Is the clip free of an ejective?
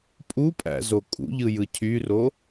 no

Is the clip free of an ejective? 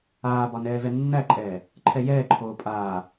no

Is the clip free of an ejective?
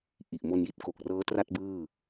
yes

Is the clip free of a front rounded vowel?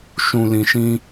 yes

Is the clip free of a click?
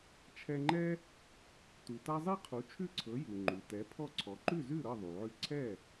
no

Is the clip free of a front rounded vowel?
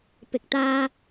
yes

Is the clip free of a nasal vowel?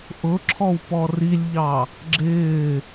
yes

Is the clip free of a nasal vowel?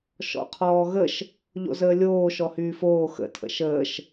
yes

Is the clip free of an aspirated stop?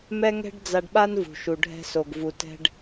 yes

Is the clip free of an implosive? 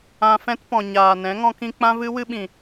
no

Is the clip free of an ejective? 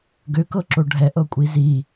no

